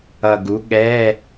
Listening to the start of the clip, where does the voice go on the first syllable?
low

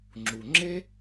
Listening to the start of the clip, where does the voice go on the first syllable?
low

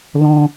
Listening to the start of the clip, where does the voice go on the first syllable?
high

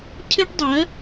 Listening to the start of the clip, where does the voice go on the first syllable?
high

